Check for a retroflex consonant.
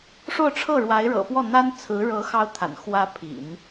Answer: present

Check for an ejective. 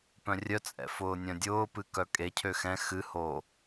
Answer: present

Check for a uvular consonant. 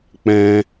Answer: absent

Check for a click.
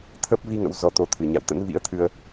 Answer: absent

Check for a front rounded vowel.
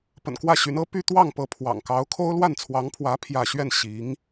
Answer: present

